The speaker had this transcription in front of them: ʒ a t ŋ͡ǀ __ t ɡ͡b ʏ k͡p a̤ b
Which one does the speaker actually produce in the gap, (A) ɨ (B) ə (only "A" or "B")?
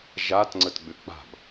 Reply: B